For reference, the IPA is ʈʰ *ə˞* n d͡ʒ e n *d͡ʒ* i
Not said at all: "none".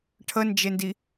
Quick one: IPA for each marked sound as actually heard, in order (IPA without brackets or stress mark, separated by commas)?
ə, d